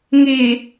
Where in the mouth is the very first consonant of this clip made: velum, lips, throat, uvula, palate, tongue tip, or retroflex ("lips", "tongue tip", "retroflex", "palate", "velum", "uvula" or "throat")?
velum